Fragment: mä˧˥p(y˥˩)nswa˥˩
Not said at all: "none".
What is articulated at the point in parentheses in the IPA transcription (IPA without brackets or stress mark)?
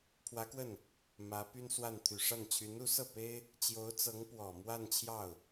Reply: y˥